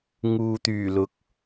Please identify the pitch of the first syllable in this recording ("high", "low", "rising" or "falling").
low